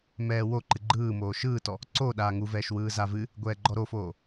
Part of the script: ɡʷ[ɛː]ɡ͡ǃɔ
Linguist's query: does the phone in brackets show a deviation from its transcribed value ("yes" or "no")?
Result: no